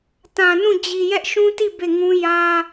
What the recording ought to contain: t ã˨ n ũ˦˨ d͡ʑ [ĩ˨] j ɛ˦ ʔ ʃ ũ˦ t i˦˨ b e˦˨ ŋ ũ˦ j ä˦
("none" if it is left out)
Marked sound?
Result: i˨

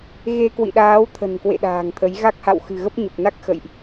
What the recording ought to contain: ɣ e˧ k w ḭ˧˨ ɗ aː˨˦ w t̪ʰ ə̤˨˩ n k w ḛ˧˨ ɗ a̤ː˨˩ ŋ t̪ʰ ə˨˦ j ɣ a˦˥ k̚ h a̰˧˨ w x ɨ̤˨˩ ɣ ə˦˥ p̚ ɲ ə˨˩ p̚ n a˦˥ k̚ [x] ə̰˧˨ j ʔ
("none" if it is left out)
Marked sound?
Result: x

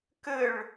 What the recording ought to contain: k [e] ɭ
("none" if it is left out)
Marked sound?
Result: ɘ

